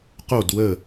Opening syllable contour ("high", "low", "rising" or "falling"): falling